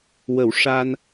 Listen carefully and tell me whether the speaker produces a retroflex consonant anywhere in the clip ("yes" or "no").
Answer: yes